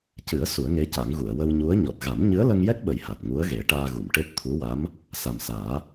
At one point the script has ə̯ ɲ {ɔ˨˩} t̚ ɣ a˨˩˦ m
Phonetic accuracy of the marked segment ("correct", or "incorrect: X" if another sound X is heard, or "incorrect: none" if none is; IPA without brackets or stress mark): correct